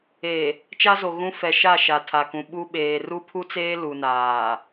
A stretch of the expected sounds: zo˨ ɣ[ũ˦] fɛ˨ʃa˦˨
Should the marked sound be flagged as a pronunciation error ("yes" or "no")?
no